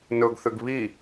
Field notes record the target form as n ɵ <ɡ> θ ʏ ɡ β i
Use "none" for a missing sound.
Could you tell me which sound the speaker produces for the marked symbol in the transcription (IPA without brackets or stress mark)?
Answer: ɡ